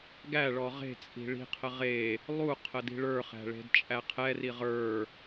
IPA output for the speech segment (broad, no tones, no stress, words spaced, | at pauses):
ɡæɭɔ ʁe̤t͡sʼi̤ ɭi̤qʰə ʁe | lˠu qʰədi̤ɭə˞χæ̤ ɭe̤dt͡ʃʼæqʰɛri ʁə˞